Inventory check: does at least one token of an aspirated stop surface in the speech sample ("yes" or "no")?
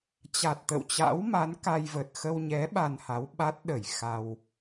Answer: no